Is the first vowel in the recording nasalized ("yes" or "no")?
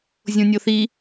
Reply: yes